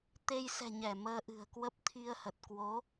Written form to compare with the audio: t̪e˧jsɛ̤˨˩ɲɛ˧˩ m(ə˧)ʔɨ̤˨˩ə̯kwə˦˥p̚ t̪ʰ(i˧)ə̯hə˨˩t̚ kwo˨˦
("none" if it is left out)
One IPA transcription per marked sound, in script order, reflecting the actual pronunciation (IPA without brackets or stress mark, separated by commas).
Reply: əː˧, i˧